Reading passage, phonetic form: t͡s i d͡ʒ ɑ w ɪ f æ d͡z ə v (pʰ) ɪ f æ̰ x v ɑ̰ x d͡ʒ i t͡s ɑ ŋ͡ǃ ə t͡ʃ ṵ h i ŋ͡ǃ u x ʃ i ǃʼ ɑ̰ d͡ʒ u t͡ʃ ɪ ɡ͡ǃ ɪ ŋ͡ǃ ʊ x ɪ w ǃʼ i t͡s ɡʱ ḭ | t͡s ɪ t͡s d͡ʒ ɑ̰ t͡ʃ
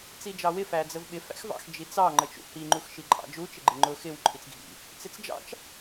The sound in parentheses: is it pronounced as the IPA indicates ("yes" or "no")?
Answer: no